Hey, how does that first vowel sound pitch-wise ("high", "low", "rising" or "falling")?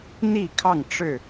falling